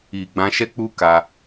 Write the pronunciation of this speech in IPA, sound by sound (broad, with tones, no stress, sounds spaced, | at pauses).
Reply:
i˨ ɡ͡b ã˧ ʃ ɛ˦ k͡p u˦ k a˧